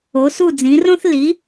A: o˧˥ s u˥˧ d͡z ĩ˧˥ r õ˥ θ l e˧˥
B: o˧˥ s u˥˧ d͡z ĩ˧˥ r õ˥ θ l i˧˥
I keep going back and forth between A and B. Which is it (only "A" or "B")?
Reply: B